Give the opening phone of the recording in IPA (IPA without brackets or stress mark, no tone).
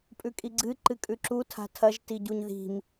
pʼ